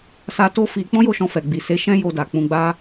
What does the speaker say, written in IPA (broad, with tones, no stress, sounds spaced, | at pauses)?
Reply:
s a˦ t o˦ f i˧ k͡p ɔ̃˦ j o˦˨ ʃ ɔ̃˧ f ɛ˨ ɡ͡b i˨ s e˨˦ ʃ ɛ̃˦ j o˧ d a˨ k͡p ũ˧ ɡ͡b a˦